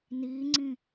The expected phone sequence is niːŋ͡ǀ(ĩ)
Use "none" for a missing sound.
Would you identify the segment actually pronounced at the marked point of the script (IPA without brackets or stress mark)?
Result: ĩ